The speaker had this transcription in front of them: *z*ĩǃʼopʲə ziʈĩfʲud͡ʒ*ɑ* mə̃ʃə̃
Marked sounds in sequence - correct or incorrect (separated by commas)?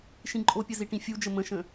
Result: incorrect, incorrect